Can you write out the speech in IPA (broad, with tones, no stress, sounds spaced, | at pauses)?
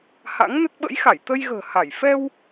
h a̰˧˥ ŋ n ə˦˥ t̚ ɓ ə̰˧˥ j x a˧˩ j t̪ ə˧ j ɣ ə̤ː˨˩ h a˧˩ j f ɛ˧ w